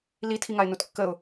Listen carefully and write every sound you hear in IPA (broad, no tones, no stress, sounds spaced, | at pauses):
l i tʰ i ŋ a ɪ̯ n u t kː ə ʊ̯